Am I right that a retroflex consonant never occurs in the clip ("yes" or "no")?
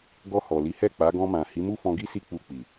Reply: yes